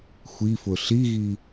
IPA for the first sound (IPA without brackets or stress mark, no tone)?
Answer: xʷ